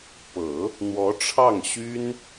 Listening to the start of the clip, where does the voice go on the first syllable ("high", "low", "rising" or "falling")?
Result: low